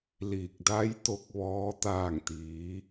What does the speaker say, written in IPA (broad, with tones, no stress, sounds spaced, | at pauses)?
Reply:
l iː˧˩ k̚ d a˧˥ j t̪ o˧˥ k̚ ʋ ɔː˧˥ t̪ aː˥˨ ŋ t̪ iː˧˥